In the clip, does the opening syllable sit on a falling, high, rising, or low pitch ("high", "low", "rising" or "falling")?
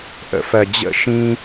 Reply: rising